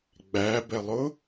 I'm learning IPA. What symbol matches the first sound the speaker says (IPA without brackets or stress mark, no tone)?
ɡ͡b